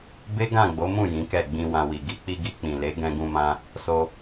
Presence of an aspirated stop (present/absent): absent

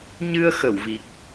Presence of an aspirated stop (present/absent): absent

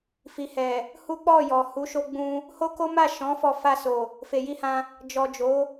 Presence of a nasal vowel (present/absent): present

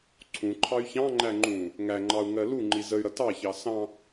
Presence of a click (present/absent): present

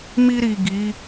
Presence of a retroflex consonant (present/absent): absent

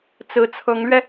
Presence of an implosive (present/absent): absent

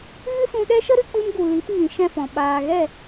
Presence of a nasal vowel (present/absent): present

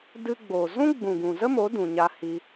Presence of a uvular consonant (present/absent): absent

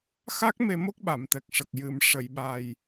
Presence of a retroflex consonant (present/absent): present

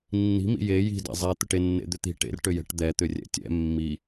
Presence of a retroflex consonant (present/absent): present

